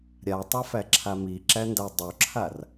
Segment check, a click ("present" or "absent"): present